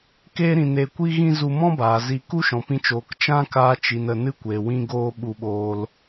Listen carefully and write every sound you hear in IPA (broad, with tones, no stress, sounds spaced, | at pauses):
k eː˦ ɾ ĩ˧ n e˧ kʷ i˦ ɣ ĩ˦ z u˧ m ɔ̃˦ b aː˨ z i˧ k u˦ ʃ ɔ̃˨ p ĩ˧ t͡ʃ oː˨ k t͡ʃ ã˦ k aː˧ t͡ʃ i˨ n ə˧ n ɨ˦ kʷ e˨ w ĩ˦ ɡ oː˦ ɓ u˧ ɓ oː˧ l